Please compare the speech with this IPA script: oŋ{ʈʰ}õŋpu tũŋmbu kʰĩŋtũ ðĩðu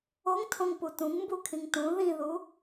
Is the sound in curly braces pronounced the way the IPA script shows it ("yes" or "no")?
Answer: no